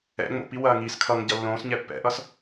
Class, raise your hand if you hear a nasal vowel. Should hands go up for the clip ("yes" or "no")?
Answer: yes